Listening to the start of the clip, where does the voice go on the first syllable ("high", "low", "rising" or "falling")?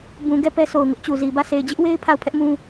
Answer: low